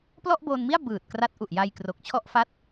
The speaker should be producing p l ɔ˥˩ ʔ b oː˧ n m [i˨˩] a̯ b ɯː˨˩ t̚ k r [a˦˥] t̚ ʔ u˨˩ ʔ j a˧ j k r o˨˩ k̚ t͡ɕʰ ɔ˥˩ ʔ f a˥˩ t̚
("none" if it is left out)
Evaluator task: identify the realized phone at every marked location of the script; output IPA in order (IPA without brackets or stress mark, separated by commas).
i˥˩, a˦˥